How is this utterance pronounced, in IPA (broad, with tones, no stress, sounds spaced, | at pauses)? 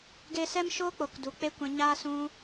ɡ e˧ s ɛ˦ m ʃ oː˦ k͡p o˨ k d u˨ k͡p e˦ kʷ ɛ̃˧ ɲ aː˦ s ũ˦